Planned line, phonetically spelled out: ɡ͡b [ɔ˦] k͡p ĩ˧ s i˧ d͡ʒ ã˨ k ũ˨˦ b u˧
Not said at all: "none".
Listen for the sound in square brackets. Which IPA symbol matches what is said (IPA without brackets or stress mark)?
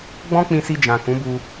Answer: ɔ̃˦